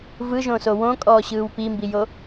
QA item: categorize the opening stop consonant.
ejective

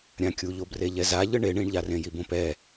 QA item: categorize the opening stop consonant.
plain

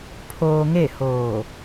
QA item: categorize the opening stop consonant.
aspirated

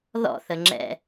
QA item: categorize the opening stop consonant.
click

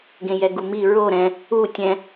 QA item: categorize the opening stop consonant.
plain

